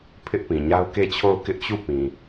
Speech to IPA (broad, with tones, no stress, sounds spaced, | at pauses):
pʰ ɪ˦ ʔ p ĩ˨ ɲ a˦ ʊ̯ k e˦˨ t͡ɕʰ o˦˨ ʊ̯ k ɪ˦ ʔ t͡ɕ u˦˨ p ĩ˨